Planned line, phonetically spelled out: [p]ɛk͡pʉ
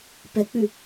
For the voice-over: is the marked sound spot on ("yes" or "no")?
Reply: yes